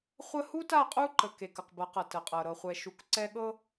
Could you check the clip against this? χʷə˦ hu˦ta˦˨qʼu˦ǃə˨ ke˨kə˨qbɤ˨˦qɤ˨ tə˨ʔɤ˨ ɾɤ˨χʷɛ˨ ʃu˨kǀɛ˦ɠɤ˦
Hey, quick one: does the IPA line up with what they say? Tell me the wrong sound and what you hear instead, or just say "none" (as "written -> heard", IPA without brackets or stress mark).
ʔ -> qʼ